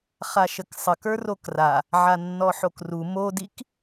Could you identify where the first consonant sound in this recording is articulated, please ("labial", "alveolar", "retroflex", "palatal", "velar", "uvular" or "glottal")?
uvular